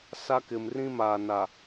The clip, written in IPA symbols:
s a˦ k ɪ˨ m r ĩ˦ m aː˨ n a˨

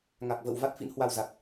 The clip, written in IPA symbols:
ŋ a˨˩ k̚ v ə̰ː˧˨ w v a˦˥ t̚ f ḭ˧˥ n h w a˧ w z a˨˩ t̚

